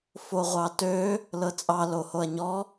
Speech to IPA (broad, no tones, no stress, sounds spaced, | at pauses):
f o ʁʷ ɑ t ø | l ɤ t͡sʼ ɑ l o h o ɐ̯ ɲ ɔ